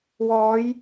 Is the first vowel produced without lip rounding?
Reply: no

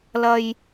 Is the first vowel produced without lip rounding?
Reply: yes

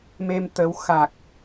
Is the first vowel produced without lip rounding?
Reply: yes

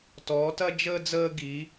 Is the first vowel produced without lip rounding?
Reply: no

